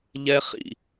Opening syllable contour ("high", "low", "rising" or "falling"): high